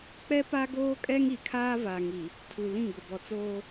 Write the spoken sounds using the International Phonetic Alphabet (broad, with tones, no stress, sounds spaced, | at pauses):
k͡p ɛ˦ p a˦ ɡ oː˦ kʼ ɛ˦ ŋ i˨ kʰ aː˦ v a˨ ŋ i˨ | tʰ u˨ l ĩ˦˨ ɡ ʊ˨ b ɔ˨ t͡s oː˦